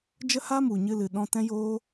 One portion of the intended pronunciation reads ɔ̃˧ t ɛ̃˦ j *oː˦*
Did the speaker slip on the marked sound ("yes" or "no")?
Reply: no